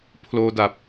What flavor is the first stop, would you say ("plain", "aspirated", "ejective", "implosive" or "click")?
aspirated